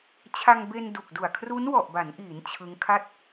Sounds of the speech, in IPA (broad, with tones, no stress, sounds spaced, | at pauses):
t͡ɕʰ a˧ ŋ b e˧ n d u˨˩ k̚ d u˨˩ a̯ kʰ r u˦˥ n w ɔ˨˩ ʔ b a˩˦ n ʔ iː˩˦ n t͡ɕʰ ɯ˦˥ ŋ kʰ a˥˩ t̚